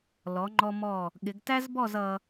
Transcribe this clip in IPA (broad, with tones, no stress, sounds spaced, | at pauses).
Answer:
l ɔ˩˧ ŋ͡ǃ ɔ˧ m ɔ˧˩ | ɠ ɪ˩˧ ɡ t æ˥ z b ɔ˥˧ z ʌ˧